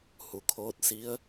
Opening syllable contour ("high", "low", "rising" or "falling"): low